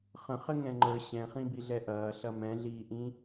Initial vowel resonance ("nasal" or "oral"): nasal